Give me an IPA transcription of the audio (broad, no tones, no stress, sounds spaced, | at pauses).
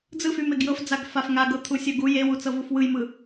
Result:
d͡z ɯ f y m e ɡ j ɤ f d͡z a ɡ f a f ŋ a ɡ ɤ t̪ʰ u sʲ ə ɡ u j e w u t͡s ɤ v u f w ɯ j m ɯ